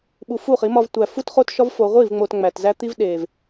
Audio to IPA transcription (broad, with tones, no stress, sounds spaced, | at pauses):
ɓ u˨ f u˦˨ χ i˨˦ m ɒ˨ v tʷ æ˨ f u˦ t χ o˦ t ʃ ɒ˦ v f o˨ ʁʷ i˦˨ v ŋ͡m o˨ t ŋ͡m æ˨ t z æ˦ t̪ i˦ v ɗ e˨ v